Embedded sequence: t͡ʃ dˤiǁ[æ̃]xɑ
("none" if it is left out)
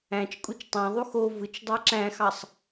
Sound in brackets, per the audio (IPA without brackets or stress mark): æ̃